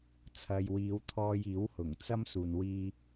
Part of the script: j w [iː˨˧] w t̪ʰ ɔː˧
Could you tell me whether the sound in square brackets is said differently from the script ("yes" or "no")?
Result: no